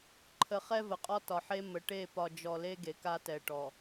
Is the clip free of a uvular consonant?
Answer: no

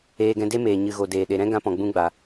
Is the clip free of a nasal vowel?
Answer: no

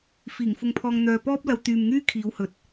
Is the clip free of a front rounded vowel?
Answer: no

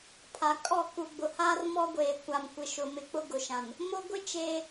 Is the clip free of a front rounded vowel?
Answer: yes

